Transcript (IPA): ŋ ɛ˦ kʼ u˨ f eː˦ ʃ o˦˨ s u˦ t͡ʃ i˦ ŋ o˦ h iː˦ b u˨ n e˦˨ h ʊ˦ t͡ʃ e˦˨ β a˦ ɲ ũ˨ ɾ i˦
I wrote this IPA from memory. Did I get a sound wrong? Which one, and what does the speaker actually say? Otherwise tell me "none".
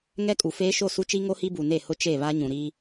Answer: iː˦ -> i˦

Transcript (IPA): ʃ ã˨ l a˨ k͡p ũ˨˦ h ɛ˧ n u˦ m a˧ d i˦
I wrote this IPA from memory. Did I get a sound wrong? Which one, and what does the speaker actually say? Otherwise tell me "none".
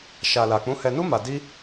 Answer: ã˨ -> a˨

